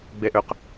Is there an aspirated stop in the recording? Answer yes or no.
no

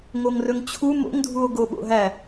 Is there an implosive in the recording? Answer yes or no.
yes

